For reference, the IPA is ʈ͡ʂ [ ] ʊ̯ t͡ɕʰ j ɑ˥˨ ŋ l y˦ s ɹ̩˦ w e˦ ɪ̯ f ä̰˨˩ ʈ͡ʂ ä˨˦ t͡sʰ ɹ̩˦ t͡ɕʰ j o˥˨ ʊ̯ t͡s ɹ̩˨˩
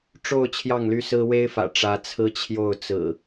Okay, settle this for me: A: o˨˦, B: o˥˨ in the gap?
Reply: B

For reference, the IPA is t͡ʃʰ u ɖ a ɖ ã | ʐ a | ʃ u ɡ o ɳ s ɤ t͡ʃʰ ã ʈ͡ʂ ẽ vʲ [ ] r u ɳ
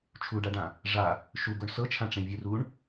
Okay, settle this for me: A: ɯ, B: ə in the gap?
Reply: A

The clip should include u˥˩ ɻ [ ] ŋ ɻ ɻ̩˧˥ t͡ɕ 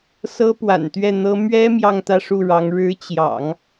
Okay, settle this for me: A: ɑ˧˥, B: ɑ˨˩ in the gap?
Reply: A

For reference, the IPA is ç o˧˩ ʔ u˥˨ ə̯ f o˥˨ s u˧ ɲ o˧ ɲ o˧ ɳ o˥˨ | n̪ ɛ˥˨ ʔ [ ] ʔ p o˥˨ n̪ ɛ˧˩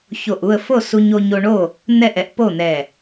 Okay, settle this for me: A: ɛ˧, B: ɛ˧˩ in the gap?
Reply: A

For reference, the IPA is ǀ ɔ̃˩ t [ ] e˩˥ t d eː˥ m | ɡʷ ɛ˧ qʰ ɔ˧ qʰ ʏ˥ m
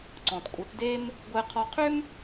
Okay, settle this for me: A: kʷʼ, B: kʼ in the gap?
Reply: A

